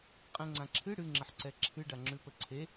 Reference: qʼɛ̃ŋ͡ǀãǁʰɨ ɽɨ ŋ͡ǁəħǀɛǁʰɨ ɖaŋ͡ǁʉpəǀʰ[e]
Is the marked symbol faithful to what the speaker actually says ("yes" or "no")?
yes